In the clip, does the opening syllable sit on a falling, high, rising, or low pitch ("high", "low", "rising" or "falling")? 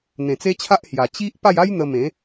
low